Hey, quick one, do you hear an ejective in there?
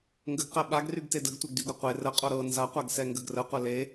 yes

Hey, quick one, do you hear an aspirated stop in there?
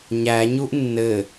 no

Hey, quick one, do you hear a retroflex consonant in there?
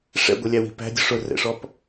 yes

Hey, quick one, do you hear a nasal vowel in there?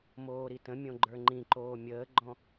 yes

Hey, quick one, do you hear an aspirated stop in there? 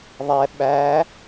no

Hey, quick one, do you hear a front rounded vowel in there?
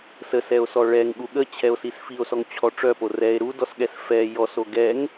yes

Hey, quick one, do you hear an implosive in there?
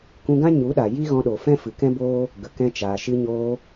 yes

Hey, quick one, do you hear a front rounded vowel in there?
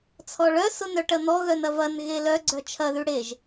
yes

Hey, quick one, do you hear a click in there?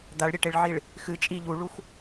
no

